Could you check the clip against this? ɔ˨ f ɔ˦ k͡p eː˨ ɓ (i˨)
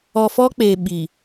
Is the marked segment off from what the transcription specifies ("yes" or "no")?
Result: no